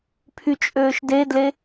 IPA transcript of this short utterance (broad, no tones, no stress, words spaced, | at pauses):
pʰyt͡ʃʼøːʃdedle